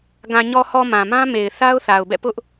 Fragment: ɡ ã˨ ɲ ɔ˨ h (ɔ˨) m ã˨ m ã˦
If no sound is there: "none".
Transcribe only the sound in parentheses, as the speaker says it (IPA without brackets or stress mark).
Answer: ɔ˨